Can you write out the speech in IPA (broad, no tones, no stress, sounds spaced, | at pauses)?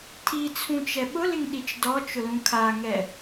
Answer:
tʰ i t͡sʰ ũ t͡ʃ ɛ ɓ ʊ l ɪ ŋ ɗ i t͡ʃ d ɔ t͡ʃ ʊ l ũ kʰ a ŋ ɛ